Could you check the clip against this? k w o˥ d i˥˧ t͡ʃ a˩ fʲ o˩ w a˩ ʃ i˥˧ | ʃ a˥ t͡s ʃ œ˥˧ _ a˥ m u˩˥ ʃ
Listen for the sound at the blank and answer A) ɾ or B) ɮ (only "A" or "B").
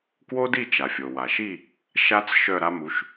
A